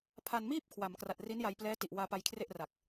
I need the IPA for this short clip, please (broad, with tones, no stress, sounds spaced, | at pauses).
pʰ a˧ n m iː˥˩ p̚ kʰ w a˩˦ m k r a˨˩ t̚ r i˦˥ n j a˧ j p l ɛː˦˥ t i˨˩ ʔ w aː˧ p a˧ j kʰ r e˥˩ ʔ r a˨˩ k̚